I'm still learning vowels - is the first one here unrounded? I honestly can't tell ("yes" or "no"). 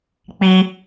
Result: yes